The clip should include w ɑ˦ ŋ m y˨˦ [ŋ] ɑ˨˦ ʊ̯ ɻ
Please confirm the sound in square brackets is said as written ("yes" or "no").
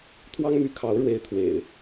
no